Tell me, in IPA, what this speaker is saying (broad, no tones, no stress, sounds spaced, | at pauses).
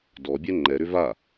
d ɔ bʲ ɛ ŋ͡ǃ ɛ ɾ ʏ v a